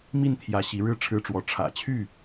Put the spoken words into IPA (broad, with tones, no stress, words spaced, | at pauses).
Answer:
mi˥˨n t̪ʰjä˨˦ ɕi˨˦ɻɻ̩˥˨ ʈ͡ʂʰɻ̩˦ʈ͡ʂwɔ˨˦ ʈ͡ʂʰä̰˨˩t͡ɕʰy˥˨